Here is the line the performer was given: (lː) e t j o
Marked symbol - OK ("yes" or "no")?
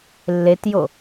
yes